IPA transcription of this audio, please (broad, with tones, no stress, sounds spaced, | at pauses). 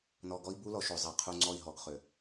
n ɔ˨ ɡ ɔ˦ i̯ b u˦ l ɔ˨ ʃ ø˨ zˤ a˨ qʰ u˦ ŋ͡ǀ ɔ˦˨ i̯ ɦ ɔ˨ ɡ χ ø˨